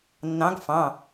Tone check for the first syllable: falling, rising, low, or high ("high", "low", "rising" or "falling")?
rising